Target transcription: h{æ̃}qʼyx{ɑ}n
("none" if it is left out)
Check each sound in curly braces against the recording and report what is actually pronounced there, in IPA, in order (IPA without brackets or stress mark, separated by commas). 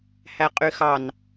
æ, ɑ